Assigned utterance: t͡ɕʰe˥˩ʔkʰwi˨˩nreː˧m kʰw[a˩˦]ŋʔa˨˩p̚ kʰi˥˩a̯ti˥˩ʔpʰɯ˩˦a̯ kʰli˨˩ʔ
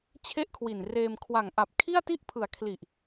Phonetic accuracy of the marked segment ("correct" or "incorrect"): incorrect